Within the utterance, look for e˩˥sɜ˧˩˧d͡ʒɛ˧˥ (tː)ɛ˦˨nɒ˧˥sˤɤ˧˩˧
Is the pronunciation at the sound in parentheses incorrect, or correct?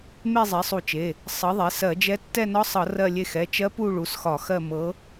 correct